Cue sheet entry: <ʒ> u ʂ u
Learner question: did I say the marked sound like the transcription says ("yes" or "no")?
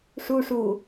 no